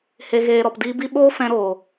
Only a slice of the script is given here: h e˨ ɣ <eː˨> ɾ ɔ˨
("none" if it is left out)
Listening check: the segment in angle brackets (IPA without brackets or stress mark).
eː˨